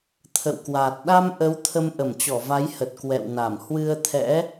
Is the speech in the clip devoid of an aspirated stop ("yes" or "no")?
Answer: no